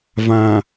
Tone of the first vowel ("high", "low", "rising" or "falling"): low